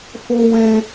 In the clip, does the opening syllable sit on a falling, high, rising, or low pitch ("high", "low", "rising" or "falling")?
high